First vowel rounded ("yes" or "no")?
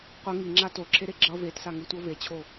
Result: no